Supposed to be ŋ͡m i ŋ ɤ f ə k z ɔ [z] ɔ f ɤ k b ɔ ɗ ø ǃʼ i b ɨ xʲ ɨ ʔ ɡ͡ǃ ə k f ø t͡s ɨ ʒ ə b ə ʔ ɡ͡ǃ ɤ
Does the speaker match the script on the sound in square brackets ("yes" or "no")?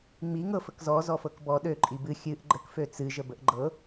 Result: yes